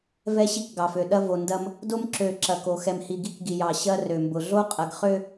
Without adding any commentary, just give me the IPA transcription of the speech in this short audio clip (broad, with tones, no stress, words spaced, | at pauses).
vɛ˦ ɕi˦kɡɑ˨fø˨ ɗɐ˦vo˨ ndɐ˦m | do˦mǁø˨ ǁɐ˨ko˨ xɛ˨mhi˨ ɡi˦kɡi˨jɑ˨ ɕɐ˦ rø˨mbʊ˨ ɮo˦qʼɐ˨ɡχø˦